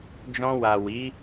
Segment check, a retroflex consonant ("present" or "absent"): absent